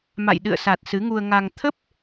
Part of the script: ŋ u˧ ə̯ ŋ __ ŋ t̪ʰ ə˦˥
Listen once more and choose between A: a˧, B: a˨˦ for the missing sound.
A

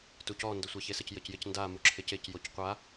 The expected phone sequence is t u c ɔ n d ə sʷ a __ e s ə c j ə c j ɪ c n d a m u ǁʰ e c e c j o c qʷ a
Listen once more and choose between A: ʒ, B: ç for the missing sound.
B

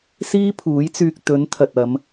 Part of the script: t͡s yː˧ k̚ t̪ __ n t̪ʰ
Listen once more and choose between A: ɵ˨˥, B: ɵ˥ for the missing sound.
A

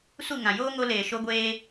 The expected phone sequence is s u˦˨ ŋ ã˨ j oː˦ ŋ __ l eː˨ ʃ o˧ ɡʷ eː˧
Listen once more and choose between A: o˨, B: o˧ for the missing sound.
B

